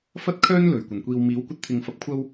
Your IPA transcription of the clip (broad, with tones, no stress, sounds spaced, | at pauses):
f ɐ˥ t̚ kʰ œː˥ n l ɵ˨˩ ɥ kʷ ɐ˨˩ n kʷ iː˨ w m iː˨˥ w kʷ ɐ˧ t̚ t̪ʰ ɪ˨ ŋ f ɐ˧ p̚ kʷʰ ɐ˥ w